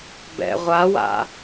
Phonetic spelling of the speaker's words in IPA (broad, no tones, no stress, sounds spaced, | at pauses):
b ɛ̰ ʁʷ a w a̰